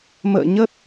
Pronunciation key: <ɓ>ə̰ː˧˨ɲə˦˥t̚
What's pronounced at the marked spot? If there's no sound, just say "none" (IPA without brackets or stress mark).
m